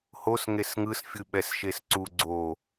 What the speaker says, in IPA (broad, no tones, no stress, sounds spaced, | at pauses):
h o s ŋ e s ŋ ɯ s fʲ ɯ ɓ ɛ s ʃ e s ǀ u ɡ͡ǀ o